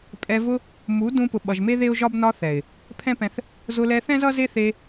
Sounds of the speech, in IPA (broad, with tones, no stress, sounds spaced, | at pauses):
pʼ ɛ˧ v ʊ˧ | m u˨˦ d ũ˧ p ʊ˨ ɓ ʌ˨ ʒ m e˦ ð e˦ ʊ̯ ʒ ɒ˦ b n ɒ˧ θ ɛ˨ ɪ̯ | pʰ ɛ̃˦ p ɛ̃˧ θ | z ʊ˧ l ɛ˧ θ ɛ̃˦ z ʌ˦ z e˦ θ e˧